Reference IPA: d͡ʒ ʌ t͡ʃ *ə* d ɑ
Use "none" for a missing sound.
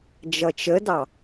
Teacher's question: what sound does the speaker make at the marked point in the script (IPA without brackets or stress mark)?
ə